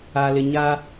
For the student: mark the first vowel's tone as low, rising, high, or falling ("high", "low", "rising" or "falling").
low